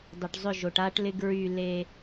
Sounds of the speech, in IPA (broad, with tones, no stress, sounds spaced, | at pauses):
dˤ ʏ˨ ʈ zˤ ʏ˦˨ ʒ o˨ ʈ a˦ ʈ l ɪ˦ ɡ ɹ y˦˨ l e˦